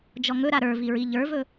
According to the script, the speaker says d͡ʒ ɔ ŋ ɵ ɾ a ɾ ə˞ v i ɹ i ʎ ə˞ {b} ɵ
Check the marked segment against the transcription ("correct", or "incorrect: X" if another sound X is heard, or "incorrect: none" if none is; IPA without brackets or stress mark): incorrect: v